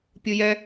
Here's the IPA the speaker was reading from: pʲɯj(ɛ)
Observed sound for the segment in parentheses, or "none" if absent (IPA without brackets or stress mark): ɛ